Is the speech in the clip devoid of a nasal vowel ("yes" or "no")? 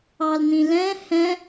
no